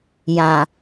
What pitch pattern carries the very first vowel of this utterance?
low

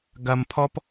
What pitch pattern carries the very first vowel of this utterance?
low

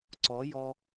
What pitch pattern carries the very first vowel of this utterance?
rising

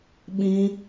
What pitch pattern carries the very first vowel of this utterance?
high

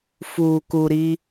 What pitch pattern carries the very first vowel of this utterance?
low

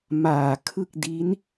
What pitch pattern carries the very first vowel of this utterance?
low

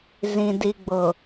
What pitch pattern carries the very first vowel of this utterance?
low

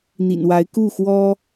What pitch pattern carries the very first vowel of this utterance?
low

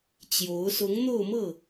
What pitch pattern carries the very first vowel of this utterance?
rising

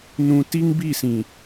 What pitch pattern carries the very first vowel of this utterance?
low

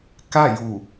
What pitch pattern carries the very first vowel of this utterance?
falling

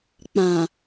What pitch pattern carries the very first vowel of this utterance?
low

